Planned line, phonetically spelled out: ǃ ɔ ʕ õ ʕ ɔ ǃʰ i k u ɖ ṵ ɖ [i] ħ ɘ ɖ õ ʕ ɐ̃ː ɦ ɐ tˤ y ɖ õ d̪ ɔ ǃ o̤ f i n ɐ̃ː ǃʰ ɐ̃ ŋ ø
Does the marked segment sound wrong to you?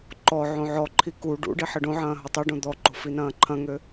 no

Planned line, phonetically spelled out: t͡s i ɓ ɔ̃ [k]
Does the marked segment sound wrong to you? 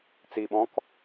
no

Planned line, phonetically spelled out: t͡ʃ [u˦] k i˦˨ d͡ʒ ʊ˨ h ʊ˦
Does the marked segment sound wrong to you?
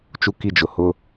no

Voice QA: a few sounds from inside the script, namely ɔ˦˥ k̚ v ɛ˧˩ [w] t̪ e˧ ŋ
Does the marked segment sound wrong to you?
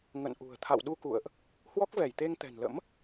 yes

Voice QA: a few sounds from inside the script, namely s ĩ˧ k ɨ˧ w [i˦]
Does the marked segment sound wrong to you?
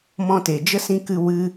yes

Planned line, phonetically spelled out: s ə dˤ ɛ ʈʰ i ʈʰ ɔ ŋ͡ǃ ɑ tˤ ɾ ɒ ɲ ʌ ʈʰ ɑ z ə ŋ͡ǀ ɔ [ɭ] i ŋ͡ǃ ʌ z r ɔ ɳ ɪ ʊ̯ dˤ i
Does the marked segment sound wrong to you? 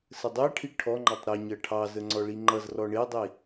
no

